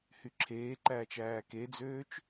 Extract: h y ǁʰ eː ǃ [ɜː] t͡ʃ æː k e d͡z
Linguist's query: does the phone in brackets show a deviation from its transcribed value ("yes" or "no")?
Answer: yes